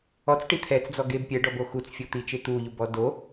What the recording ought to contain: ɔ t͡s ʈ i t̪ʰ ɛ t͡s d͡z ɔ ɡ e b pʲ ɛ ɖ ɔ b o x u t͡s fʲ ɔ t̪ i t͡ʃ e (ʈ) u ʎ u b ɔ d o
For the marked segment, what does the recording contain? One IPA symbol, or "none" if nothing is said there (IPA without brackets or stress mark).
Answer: t̪